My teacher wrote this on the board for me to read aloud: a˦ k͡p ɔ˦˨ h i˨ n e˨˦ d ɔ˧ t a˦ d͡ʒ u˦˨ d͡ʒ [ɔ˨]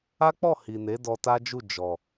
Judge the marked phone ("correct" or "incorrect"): correct